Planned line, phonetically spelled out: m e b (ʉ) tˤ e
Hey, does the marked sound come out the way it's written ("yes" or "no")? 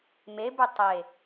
yes